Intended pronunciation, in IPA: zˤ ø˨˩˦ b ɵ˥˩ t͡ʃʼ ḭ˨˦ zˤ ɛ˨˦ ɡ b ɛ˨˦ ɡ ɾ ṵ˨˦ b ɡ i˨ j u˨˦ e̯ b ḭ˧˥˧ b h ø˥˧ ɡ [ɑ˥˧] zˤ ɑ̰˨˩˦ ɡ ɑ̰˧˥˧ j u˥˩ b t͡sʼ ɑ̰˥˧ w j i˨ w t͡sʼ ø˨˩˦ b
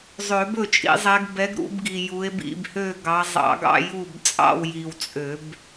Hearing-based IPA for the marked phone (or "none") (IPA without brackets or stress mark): ɑ˨˦